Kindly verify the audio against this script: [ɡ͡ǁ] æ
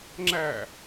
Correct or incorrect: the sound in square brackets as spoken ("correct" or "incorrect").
incorrect